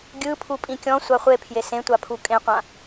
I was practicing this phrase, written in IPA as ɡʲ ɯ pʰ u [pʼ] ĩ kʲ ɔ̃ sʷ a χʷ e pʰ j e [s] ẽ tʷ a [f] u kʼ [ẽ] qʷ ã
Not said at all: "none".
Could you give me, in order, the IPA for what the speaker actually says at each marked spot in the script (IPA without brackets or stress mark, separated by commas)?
pʼ, s, pʰ, ẽ